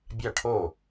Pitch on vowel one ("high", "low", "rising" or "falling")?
falling